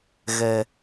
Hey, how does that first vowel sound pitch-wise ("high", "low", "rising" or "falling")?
low